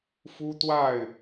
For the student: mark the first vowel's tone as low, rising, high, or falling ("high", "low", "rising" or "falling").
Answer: high